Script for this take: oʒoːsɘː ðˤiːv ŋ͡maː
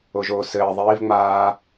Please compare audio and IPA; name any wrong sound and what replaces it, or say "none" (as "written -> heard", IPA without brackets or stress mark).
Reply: none